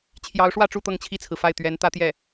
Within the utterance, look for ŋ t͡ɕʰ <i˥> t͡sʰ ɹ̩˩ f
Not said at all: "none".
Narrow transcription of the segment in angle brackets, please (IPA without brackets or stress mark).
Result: i˥˩